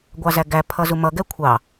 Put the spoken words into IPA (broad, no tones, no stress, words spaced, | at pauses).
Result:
ɡʷɑzæɡæ pʰʌzumʌ ɡɛkʷʰɑ